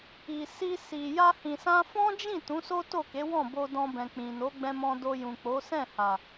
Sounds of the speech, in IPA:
i˨ s i˧ s i˨ j a˧ h ĩ˨ s ã˧ f ɔ̃˦ d͡ʒ ĩ˦˨ t ũ˨˦ s o˦ t o˦˨ k e˨˦ w ɔ̃˦˨ b o˧ d ɔ̃˧ b ɛ̃˨ k͡p ĩ˨ n o˨˦ ɡ͡b ɛ̃˦ m ɔ̃˧ d o˧ j ũ˨ k͡p o˨˦ s ɛ̃˦˨ h a˨

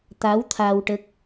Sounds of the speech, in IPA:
t̪ a˧˥ w t̪ʰ a˧ w ʈ ə˦˥ k̚

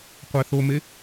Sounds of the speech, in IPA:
qʷ æ θ o m e

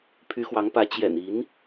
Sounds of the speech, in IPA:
pʰ y˧˥ x w ɑ˧˥ ŋ p ä˧˥ t͡ɕ j ɛ̰˨˩ n i˧˥ n

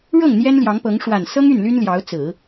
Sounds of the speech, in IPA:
ɻ ɤ˥˩ ŋ n̪ j ɛ˥ n l j ɑ˧˥ ŋ p ɤ˧˥ ŋ ʂ w a˨˩ n s ɤ˥ ŋ y˥˩ n l y˥ n l j ɑ˧˥ ʊ̯ t͡s ɹ̩˨˩˦

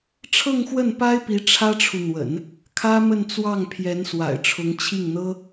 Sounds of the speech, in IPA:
ʈ͡ʂʰ ɤ˥˧ ŋ x w ə˥˩ n p a˥ ɪ̯ p i˧˥ ʈ͡ʂʰ ä˥ ʈ͡ʂʰ u˨ n̪ w ə̰˨˩˦ n | kʰ ä˥ m ə˥˧ n t͡s w ɑ˥˩ ŋ pʰ j ɛ˧˥ n s w a̰˨˩ ɪ̯ ʈ͡ʂʰ ʊ˧˥ ŋ t͡ɕʰ i˥˩ ŋ n̪ ɤ˥

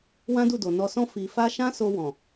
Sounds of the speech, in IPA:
w ã˦ d u˦˨ d o˨ n ɔ˧ s ɔ̃˦ f i˧ f a˦ ʃ ã˦ s o˧ w ɔ̃˨

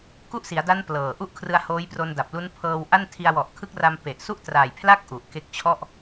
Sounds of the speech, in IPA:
k u˥˩ ʔ s i˩˦ a̯ d a˦˥ n p l ɤː˨˩ ʔ u˥˩ ʔ kʰ r ɯ˧ a̯ h oː˦˥ j p r o˧ n d a˨˩ p̚ l u˦˥ n pʰ ɤː˧ w ʔ a˥˩ n tʰ i˧ a̯ w ɔ˨˩ ʔ kʰ ɯ˦˥ k̚ r a˧ m p e˨˩ ʔ s u˥˩ ʔ t r aː˨˩ j pʰ l a˥˩ k̚ ʔ u˨˩ ʔ k e˥˩ k̚ t͡ɕʰ ɔ˥˩ ʔ

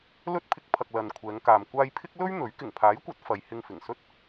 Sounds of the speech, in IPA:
l ɵ˥ t̚ pʰ ɪ˧ k̚ pʰ ɐ˨ k̚ l ɐ˨ n kʷʰ ɛː˨˧ ŋ k aː˨ m kʷ aː˧ j pʰ ɪ˥ k̚ l ɵ˥ ɥ n̪ ɵ˨˥ ɥ k ɪ˨˩ ŋ pʰ aː˨˥ j kʷ ɐ˨˥ t̚ f ɐ˨˧ j h ɪ˧ ŋ f ɪ˨˩ ŋ s ɵ˥ t̚

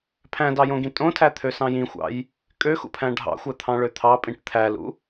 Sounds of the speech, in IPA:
pʰ æ̃ d ɑ j õ ɡ ĩ tʼ õ tʰ æ t̪ʰ ø s ɑ̃ j ĩ xʷ ɑ̰ j | kʼ ø x ṵ pʰ æ̃ ɖʱ ɑ̰ xʷ æ t̪ʰ ɑ̃ ɭ ø t̪ʰ ɑ pʼ ĩ ʈ t̪ʰ æ l ṵ

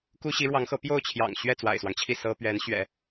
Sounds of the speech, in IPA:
k u˥ ɕ i˧˥ ɻ w ɑ˧˥ ŋ x ɤ˧˥ p j o˥˩ ʊ̯ t͡ɕʰ j ɑ̰˨˩ ŋ ɕ ɥ ɛ˥˩ t͡s w a̰˨˩ ɪ̯ s w ɑ˦ ŋ t͡ɕʰ i˥˩ s ɤ˥ p ɥ ɛ˧˥ n ɕ ɥ ɛ̰˨˩˦

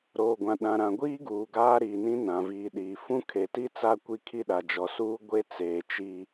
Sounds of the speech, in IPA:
ɾ oː˨ ɡʷ ã˨ ɗ ã˨ ɾ ã˨ ɡʷ iː˦ ɡ uː˨ ɡ aː˦ ɾ iː˨ n ĩ˦ n ã˨ v iː˨ ɗ iː˨ f ũ˦ kʰ e˨ t i˦ t͡s a˦ kʷ i˦ kʰ i˦ ɗ a˨ d͡ʒ ɔ˨ s uː˦ ɡʷ e˦ t͡s eː˨ t͡ʃ i˦

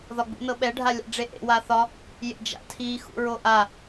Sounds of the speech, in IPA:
ð ɒ ɡ͡b ṵ n ɤ ɓ ɛ ɖʱ a lʲ a̰ ɖ͡ʐ e ʔ ḛ w a θ ɒ | j ḛ d͡ʒ a̰ tʰ i x ṵ ɹ o ʔ a

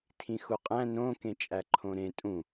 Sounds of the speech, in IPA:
tʰ ĩ x u qʼ æ̃ n õ k ẽ t͡ʃʼ æ ǃʰ õ ɾ ẽ tʼ ũ

